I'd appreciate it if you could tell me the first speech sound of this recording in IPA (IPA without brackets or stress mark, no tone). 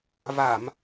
v